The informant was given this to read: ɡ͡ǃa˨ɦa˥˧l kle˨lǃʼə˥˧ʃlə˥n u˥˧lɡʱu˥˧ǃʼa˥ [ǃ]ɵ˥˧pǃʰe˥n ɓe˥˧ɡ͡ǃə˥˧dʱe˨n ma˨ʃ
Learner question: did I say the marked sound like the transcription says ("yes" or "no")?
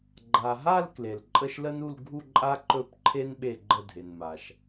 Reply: yes